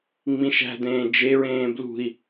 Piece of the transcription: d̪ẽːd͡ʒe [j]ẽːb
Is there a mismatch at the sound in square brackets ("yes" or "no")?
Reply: yes